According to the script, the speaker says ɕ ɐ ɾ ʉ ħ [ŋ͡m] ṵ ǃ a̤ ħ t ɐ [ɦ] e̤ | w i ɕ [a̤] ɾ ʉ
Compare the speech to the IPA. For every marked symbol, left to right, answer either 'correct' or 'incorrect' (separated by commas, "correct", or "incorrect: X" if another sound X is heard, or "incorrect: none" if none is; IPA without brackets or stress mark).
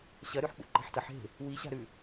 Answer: incorrect: k͡p, incorrect: ħ, correct